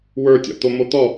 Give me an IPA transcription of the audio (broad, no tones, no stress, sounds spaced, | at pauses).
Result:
w ə˞ tʲ ɔ̰ t̪ o m o t̪ ɔ